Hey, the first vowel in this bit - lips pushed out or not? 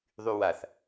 yes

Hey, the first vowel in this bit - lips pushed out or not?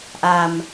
no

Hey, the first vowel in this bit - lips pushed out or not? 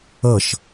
no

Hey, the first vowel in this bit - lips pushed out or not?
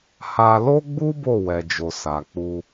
no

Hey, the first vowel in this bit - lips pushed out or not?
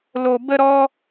yes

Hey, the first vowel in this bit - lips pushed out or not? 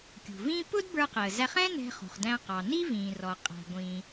yes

